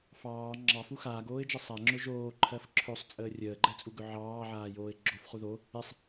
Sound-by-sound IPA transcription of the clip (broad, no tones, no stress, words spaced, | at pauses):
fɑː ŋ͡ǁɑfu xaːɡoːɪ̯d͡ʒɘ sˤaŋ͡ǁɵ ʒoːǃʰɜf ǁʰɵsˤt͡sʼəː rʲəːɡ͡ǃɛt͡sʼuɡɵ ʕɑːʕaːjoːɪ̯ ɡ͡ǁofχu ðo | esˤ